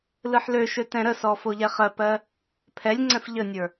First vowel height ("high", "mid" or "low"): high